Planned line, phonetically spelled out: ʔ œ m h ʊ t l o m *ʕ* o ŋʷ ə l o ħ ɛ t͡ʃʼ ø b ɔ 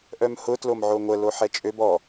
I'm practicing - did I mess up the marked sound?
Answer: no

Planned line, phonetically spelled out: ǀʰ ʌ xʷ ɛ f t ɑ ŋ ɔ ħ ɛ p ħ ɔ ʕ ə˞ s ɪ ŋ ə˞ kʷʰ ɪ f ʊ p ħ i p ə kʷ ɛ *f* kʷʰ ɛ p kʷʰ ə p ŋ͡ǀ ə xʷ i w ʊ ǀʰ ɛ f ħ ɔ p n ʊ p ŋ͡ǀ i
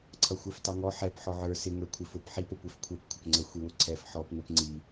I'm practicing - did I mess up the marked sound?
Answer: no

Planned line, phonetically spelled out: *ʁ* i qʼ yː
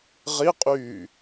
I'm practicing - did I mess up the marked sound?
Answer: no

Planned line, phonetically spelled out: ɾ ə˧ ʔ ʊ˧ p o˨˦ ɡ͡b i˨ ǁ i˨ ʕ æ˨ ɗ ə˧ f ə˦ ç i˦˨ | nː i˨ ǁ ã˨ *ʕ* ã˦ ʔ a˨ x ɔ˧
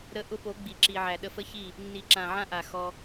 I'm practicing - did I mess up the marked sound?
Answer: no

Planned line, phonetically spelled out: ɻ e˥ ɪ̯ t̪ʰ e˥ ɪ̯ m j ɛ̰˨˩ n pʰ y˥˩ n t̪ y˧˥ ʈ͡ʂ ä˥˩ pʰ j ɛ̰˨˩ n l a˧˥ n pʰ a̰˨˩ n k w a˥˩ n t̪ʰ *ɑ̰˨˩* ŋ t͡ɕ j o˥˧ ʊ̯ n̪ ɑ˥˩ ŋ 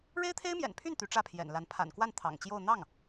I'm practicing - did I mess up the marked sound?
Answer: no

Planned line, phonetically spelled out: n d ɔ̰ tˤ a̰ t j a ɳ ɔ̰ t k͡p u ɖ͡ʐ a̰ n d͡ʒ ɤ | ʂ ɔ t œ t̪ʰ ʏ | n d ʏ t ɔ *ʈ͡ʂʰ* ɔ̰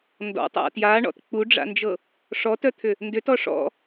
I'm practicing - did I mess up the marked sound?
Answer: yes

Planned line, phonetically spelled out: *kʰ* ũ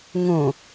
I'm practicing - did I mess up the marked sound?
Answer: yes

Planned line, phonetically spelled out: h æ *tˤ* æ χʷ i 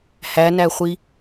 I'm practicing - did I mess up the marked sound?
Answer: yes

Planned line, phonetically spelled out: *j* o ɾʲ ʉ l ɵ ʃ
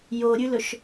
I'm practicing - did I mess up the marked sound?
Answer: no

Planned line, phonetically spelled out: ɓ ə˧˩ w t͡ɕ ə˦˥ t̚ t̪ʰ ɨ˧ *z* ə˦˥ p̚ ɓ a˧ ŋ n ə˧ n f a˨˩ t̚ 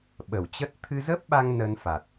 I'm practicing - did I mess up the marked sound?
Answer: no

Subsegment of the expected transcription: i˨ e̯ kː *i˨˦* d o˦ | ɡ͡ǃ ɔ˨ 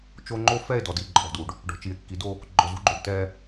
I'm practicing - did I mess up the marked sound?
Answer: no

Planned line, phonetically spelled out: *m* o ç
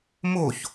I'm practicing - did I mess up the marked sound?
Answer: no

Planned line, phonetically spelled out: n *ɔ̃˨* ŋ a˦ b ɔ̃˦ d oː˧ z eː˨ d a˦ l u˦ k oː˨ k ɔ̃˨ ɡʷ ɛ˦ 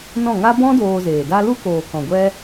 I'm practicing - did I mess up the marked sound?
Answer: yes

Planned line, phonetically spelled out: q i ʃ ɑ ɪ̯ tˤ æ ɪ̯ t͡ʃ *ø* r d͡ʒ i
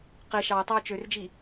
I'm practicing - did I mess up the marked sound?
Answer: no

